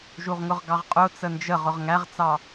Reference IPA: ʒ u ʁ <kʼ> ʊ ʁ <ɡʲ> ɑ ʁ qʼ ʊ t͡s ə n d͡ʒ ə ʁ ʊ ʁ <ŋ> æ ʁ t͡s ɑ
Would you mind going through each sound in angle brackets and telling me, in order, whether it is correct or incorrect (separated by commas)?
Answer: incorrect, incorrect, correct